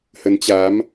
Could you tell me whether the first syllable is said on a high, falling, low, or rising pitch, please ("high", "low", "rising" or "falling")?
rising